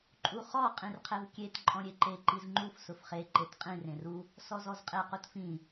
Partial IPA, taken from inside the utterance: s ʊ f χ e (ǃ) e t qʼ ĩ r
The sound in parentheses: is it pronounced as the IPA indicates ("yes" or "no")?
yes